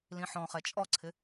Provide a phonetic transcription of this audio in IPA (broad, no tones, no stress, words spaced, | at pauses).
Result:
lĩħɔ̃ χɛt͡ʃʼɔǀʰɪ